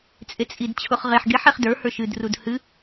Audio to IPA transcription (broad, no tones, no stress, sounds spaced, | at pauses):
t͡sʼ e t͡sʼ i d t͡ɕʰ ʊ χ ʁ e ħ ɡ e ħ e χ d ə˞ h ə˞ ʃ ɨ d r u d h ɨ